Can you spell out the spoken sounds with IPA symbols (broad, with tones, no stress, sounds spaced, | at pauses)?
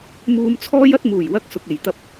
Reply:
m uː˧ m t͡sʰ ɔː˥ j ɐ˥ t̚ m uː˨˩ j w ɐ˧ k̚ s ʊ˨ k̚ e˨˩ j t̪ ɐ˧ p̚